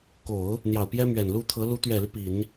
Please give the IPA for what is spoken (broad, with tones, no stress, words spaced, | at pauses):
ko˨˩˦ʊ̯ | n̪jɑ˨˩ʊ̯pjɛ˥mɥɛ˨˩nlu˥ t̪ʰɤ˧˥ lu˧˥t̪ɥɛ˨˩ly˦ pi˨˩˦n